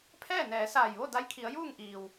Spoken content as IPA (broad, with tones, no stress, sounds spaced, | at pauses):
pʰ ɛː˥˨ n ɛː˩˧ s aː˧˩ j ʋ o˥˨ d a˧˥ j kʰ i˩˧ ə̯ j uː˥˨ ŋ ʔ iː˩ w